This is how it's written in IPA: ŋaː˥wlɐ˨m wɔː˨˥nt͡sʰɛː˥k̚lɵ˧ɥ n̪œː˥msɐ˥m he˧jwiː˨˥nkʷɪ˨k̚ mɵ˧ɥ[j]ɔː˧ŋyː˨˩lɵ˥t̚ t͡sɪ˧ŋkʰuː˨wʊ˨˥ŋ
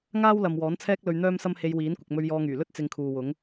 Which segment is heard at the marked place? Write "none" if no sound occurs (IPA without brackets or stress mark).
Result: j